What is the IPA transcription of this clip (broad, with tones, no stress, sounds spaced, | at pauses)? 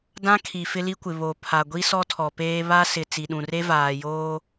d ã˦ kʰ i˨ f ɪ˦ l i˦ kʷ ɪ˨ β o˨ pʰ a˨ ɡʷ i˦ s ɔ˦ tʰ ɔ˨ p eː˦ β a˦ s ɪ˨ t͡s i˨ ɗ ũ˨ r e˦ v aː˨ j oː˦